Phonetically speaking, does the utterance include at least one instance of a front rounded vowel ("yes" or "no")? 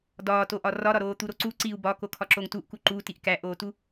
no